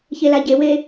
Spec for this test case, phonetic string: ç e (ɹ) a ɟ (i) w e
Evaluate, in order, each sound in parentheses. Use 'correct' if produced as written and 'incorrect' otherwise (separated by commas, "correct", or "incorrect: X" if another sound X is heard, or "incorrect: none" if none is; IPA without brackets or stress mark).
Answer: incorrect: l, incorrect: e